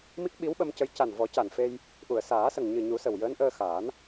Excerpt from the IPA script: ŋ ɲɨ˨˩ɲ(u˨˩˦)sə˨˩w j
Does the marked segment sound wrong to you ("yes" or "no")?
no